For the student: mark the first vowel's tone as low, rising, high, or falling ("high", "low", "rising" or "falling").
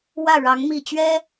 falling